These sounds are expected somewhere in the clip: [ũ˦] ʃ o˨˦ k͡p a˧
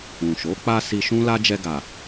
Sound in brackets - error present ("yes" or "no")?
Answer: yes